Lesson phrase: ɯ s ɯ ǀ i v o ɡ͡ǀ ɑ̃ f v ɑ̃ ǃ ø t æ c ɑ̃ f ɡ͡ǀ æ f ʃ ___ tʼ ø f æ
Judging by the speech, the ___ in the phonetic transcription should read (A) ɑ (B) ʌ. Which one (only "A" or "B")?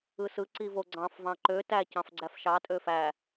A